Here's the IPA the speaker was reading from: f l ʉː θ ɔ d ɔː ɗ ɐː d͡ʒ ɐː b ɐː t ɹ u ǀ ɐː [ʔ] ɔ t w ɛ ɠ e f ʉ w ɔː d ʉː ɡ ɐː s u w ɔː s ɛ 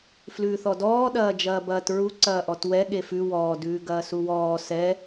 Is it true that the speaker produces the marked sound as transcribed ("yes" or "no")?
yes